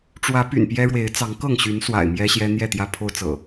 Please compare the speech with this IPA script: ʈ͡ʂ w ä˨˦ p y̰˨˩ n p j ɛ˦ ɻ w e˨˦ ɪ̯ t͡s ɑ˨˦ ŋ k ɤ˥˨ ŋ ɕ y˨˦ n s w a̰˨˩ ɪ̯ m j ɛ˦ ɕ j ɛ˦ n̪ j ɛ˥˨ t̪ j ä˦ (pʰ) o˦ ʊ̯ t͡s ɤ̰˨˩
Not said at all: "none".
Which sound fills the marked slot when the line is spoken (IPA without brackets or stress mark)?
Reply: pʰ